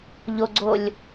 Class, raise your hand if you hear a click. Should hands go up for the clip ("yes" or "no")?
yes